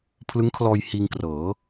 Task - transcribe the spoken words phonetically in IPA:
pʰ l ɯ˦˥ ŋ kʰ l ɔː˧ j h iː˧ ŋ k r ɤː˩˦

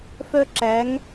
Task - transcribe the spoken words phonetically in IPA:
f œ˥ ǁ æ˧˥ ŋ

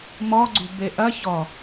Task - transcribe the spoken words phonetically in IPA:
m ɔ ɡ͡ǀ ṳ b e ʔ ɐ ç ɔ

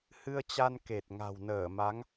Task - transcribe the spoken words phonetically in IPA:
h ɨ˧ ə̯ t͡ɕ a˧ n k e˨˩ t̚ ŋ a̤˨˩ w n əː˧˩ m a˨˦ ŋ

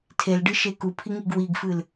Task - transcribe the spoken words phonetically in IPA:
tʰ e l ɖ ɨ ʃ e k u pʰ i ŋ i ɡ w i ɡ f ɨ l

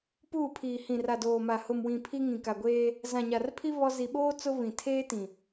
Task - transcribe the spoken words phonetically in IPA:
p uː˦˨ pʰ iː˨ h ĩ˨ r a˨ d oː˨ m a˨ h ʊ˨ m w ĩ˨ pʰ i˦ ŋ ĩ˨ k a˨ ɡʷ eː˦ | z ã˨ ɲ a˨ r pʰ i˦ β ɔ˦ z i˨ ɓ oː˦ t͡s ʊ˦ β ĩ˨ tʰ eː˦ t ĩ˨

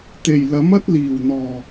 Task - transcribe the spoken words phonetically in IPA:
t̪ e˨˩ j l ɐ˨˥ m ɐ˥ t̚ l iː˨˩ w n̪ ɔː˨˩

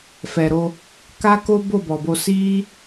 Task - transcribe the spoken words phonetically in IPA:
f ɛ˨ ɾ o˧ | k a˦ k o˦ b o˦˨ b ɔ˨ b o˧ s i˦

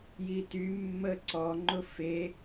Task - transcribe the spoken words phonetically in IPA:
j i t y mː ə ǀ ɔ ŋ͡ǃ ʊ f e

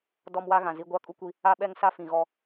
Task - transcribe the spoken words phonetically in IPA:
d ɔ˦ m w a˦ ɣ ã˨ z i˦ ɡʷ a˦ kʼ u˦ kʷ i˦ | a˦ ɓ ɛ˦ ŋ s a˦ f ĩ˨ ɣ ɔ˦

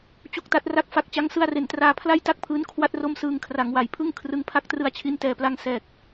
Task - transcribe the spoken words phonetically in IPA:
t͡ɕ u˥˩ k̚ t a˦˥ t̚ r a˥˩ k̚ f a˦˥ k̚ t͡ɕ a˦˥ ŋ s ɯ˧ a̯ r e˩˦ n t r aː˧ pʰ l a˥˩ j t a˥˩ k̚ pʰ ɯː˦˥ n kʰ w a˥˩ t̚ r o˥˩ m s ɯː˧ ŋ kʰ r a˩˦ ŋ w a˩˦ j pʰ ɯ˥˩ ŋ kʰ r ɯ˧ ŋ pʰ a˥˩ k̚ t r ɯ˧ a̯ t͡ɕʰ i˧ n t ɛː˨˩ p l a˧ ŋ s ɛː˨˩ k̚

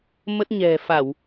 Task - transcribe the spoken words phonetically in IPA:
m ə˦˥ t̚ ɲ ɛ̤˨˩ f a˧˩˨ w

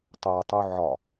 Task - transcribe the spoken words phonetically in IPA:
tˤ o tˤ u ʕ ɒ

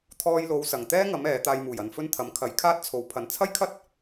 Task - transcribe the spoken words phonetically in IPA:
t̪ʰ ɔː˧ j l o˨˧ w s ɐ˨ ŋ t̪ ɛː˥ ŋ ɐ˨˧ m ɛː˨˧ t̪ aː˧ j m uː˨˩ j ɐ˨ n f ɵ˥ n t̪ʰ ɐ˨˥ m kʰ ɐ˨˥ j kʰ aː˥ t̚ t͡sʰ o˨ w pʰ ɐ˨ n t͡sʰ ɐ˥ j kʰ ɐ˥ t̚

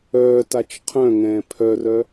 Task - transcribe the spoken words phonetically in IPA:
œː t a t͡ʃ qʰ œ̃ ŋ ɛ̃ː pʰ œ r œ

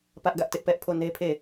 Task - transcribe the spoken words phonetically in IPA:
p ä˦ ʔ ɡ ä˦ ʔ t ɪ˦ ʔ p ɛ˦ ʔ pʰ o˦˨ n e˦ pʰ e˦˨

